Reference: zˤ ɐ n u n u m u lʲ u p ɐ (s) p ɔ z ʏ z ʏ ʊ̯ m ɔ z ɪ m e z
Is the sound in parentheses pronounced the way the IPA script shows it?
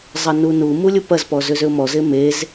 no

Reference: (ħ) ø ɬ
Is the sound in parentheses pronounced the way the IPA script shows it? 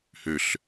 no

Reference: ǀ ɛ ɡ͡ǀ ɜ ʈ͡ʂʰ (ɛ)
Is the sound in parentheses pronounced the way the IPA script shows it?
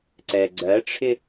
no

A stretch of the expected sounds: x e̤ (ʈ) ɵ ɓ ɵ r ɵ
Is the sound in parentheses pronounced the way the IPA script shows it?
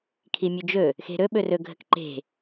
no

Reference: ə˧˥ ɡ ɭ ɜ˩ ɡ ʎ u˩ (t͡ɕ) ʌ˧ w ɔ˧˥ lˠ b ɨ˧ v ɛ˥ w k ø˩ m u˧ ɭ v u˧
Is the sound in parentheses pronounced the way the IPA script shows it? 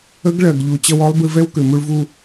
yes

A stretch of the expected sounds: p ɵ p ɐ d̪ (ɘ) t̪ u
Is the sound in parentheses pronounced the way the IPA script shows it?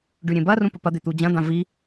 no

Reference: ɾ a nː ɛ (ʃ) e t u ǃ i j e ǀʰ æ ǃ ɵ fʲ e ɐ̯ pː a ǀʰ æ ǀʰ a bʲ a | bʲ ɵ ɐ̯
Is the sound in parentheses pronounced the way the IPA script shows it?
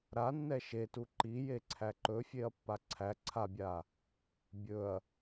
yes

